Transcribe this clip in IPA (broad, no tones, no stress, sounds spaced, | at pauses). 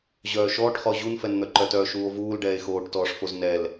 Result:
ʑ œː ʃ ɔː ʈ χ ɔ ʑ u n f ɛ n n̪ œ ǃ œ t œː ʃ uː o̯ v uː l ɖ ɛː e̯ x oː ʈ t ɔː ʂ f o z n ɛ l